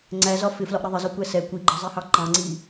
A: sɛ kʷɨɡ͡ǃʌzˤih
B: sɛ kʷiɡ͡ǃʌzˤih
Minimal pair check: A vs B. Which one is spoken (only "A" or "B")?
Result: B